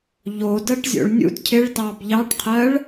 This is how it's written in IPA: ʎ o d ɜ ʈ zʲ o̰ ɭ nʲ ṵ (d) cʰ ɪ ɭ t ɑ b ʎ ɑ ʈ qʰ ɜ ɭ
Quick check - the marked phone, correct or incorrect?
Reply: correct